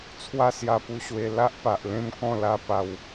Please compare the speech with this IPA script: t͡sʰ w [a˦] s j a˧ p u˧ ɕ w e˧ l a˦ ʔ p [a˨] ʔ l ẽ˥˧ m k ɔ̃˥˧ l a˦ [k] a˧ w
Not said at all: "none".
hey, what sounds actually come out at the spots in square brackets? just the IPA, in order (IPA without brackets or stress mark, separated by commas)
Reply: a˥˧, a˨, p